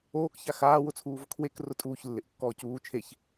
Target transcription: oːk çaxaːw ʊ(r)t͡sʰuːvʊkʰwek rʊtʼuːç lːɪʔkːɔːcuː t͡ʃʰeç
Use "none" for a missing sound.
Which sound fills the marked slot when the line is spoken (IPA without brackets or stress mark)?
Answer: none